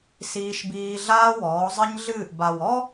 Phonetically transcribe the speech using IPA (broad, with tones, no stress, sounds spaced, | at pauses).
s iː˦ ʃ b iː˦ ɮ aː˦ w ɔː˨˦ zˤ ɨ˦ ɲ ɮ ɨː˦˨ ʔ b a˨ w ɔ˦